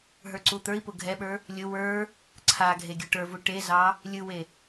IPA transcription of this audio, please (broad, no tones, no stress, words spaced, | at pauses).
ɦə˞ǀut̪ə˞i̯pʊ ɡʱɛɓə˞ | lʲʊ wə˞ | ǀʰa ɡʱeɡʲuʈə˞vu ʈezɑ | lʲɯwe